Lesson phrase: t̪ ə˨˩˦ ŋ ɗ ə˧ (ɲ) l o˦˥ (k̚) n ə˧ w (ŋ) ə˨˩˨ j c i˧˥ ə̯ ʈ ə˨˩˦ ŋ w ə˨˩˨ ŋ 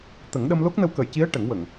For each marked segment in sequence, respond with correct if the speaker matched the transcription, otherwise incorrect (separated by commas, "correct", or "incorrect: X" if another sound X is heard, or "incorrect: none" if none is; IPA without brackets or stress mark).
incorrect: m, correct, incorrect: k